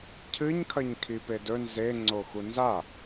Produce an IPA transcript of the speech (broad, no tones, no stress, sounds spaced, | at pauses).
cʰ ɨ ɲ kʰ ɐ ɲ kʰ i p e d ɵ n z e ŋ͡ǀ o x u n z a